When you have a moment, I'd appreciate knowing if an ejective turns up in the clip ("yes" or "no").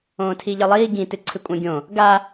yes